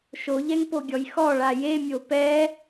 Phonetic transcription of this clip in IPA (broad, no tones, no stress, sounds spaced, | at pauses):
ʃ o ʎ ɛ ŋ p o ɡʲ ɔ j x ɔ ɭ a j e mʲ o p ɛ